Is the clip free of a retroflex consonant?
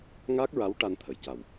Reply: no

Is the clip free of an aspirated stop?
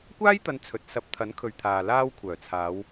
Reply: no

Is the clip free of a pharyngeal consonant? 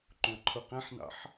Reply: no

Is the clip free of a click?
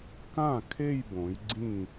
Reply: no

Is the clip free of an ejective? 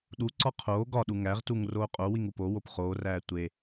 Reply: no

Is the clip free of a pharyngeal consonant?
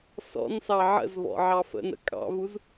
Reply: no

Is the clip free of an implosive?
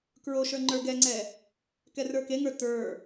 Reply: yes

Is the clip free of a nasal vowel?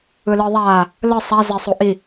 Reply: yes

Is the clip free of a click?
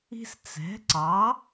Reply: no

